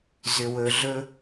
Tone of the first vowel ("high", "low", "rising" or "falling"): low